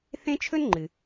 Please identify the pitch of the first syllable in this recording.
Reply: high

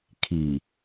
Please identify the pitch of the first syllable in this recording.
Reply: low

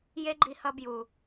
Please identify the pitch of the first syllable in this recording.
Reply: high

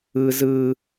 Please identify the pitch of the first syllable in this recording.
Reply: high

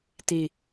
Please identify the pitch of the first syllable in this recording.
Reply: falling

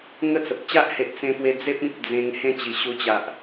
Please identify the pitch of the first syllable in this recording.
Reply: falling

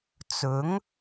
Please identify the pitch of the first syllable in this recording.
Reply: rising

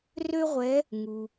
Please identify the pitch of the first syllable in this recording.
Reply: high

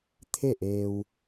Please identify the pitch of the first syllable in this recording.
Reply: falling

